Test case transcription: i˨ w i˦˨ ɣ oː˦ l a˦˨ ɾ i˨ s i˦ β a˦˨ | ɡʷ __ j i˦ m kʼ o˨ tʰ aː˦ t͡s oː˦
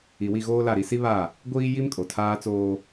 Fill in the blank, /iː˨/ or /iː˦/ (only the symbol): iː˦